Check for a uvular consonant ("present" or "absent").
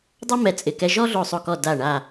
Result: absent